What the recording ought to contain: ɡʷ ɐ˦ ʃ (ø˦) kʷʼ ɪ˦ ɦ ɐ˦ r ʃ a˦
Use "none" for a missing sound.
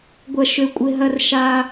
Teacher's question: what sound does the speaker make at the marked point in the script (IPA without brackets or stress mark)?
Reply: ø˦